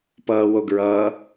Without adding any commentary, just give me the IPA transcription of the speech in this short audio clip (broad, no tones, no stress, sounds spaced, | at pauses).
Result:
p ʌː w o ɡ ɹ ʌ